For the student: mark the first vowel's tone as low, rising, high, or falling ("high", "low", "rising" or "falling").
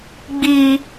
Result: high